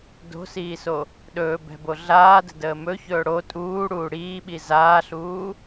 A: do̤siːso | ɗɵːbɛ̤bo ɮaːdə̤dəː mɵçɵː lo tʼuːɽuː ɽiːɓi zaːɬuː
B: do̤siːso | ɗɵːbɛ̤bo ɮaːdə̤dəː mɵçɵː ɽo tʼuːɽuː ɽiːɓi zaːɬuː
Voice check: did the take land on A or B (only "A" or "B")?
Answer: B